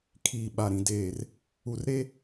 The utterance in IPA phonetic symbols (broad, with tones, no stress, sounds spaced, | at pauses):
kʰ iː˨ ɓ a˨ ɾ ĩ˨ d eː˨ r | u˨ r ɾ e˦